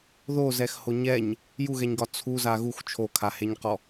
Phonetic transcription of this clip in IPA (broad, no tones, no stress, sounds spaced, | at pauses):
ð o z ɛ x h o ɲ ɛ ɲ | j u ɣ ɛ ɲ ɡ ɒ t͡sʰ u z a ɣ u x t͡ʃʰ o kʰ a h e ɲ q ɔ